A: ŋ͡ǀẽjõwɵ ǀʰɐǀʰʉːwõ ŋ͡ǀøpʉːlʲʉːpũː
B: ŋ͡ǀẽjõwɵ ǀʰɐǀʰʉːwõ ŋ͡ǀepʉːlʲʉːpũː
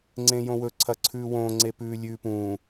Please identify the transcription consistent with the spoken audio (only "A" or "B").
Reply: B